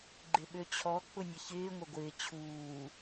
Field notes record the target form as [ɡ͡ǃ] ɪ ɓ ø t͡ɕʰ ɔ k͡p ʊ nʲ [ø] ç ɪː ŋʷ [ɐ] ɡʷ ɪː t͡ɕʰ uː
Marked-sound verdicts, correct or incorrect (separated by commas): correct, incorrect, correct